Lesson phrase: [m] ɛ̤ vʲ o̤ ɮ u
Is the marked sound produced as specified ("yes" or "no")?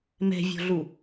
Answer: yes